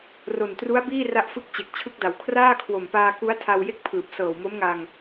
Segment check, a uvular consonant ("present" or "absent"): absent